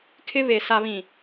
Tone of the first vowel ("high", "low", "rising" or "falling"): high